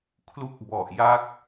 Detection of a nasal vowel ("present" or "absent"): absent